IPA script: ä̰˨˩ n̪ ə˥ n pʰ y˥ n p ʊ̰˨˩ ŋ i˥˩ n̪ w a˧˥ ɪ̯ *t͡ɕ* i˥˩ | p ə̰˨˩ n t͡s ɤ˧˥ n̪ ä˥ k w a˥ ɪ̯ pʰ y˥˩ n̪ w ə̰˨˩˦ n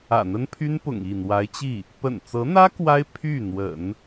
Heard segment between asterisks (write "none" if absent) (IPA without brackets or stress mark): t͡ɕ